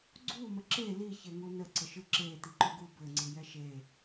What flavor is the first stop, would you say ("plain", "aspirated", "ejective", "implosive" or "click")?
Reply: click